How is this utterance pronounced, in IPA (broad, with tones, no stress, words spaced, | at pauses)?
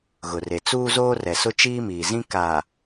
ɣʊ˨re˨ t͡suː˦zoː˦rɛ˨sʊ˦ t͡ʃiː˦miː˨ zĩ˦ kaː˨